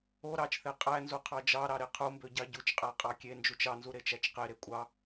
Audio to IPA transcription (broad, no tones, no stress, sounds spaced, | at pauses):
o ɾ ɑ t͡ʃ θ e qʼ æ n z u qʰ ɑ d͡ʒ ɑ ɾ ɑ ɾ e qʰ u m b ø ɟ ɑ ɟ u t͡ʃ qʼ æ qʼ ɑ kʲ e n d͡ʒ u t͡ʃ ɑ n z u ɾ e t͡ʃ æ t͡ʃ q e ɾ e kʷʼ ɑ